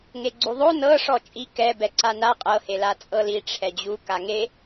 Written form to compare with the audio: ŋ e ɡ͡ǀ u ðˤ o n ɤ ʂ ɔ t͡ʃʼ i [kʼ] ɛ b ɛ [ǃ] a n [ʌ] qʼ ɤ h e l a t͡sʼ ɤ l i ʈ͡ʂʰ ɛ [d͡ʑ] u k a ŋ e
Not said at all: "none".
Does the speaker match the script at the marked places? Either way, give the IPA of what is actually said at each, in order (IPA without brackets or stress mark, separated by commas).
k, ǀ, a, d͡ʑ